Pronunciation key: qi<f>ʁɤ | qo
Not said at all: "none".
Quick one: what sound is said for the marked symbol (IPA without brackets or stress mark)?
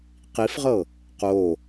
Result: f